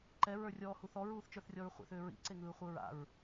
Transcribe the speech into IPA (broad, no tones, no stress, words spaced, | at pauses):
ǃɛ ɹə˞rʲɔːhuθɔ ɹuːθt͡ʃə˞θrʲɔɹχʷḛθ ʏːɹḭ ǀeŋɯːχʷɯɹa̰ɹ